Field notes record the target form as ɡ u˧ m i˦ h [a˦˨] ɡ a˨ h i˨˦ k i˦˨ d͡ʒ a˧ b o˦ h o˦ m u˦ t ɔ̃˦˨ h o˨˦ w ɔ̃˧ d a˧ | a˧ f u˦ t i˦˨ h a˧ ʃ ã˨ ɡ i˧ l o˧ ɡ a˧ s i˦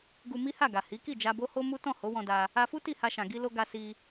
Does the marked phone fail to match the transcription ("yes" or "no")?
no